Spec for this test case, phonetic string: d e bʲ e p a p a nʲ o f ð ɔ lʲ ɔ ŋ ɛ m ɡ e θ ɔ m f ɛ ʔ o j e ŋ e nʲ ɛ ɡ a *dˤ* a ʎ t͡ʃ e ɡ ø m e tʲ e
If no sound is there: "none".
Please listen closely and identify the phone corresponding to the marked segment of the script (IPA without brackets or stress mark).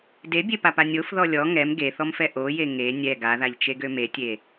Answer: ð